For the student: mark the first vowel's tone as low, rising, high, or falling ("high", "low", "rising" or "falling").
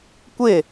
falling